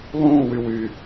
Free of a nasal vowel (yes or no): no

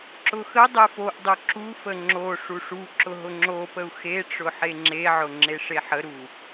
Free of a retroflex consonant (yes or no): no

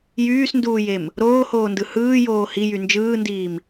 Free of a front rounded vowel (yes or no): no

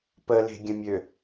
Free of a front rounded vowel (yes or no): no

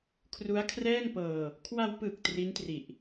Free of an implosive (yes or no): yes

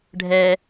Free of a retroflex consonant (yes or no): no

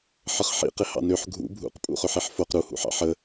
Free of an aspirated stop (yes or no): yes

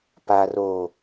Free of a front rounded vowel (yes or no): yes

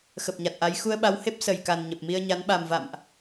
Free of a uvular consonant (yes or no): yes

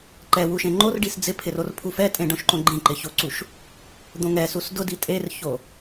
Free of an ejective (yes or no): no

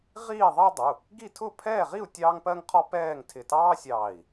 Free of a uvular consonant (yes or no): no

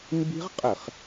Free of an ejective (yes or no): no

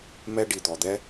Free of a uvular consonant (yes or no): yes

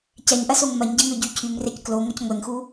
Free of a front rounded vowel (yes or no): no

